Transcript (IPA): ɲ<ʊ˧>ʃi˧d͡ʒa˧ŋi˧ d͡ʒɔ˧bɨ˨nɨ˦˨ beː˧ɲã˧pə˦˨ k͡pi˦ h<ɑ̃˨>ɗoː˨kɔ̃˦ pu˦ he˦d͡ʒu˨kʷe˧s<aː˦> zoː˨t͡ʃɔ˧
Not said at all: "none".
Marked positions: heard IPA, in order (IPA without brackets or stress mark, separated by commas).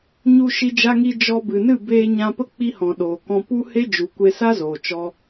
u˧, ɔ̃˨, a˦